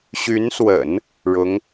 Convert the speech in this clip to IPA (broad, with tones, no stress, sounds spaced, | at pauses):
ɕ y˧˥ n s w ə̰˨˩˦ n | ɻ ʊ˧˥ ŋ